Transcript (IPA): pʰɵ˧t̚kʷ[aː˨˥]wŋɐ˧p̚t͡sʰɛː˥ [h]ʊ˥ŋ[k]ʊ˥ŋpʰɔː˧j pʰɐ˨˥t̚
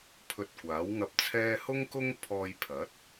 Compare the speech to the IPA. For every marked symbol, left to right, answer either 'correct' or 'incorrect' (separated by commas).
correct, correct, correct